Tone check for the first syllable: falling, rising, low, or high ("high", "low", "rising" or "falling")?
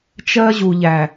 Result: high